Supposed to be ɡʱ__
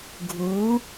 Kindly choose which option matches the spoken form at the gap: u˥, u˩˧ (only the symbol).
u˩˧